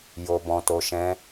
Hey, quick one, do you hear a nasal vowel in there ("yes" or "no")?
yes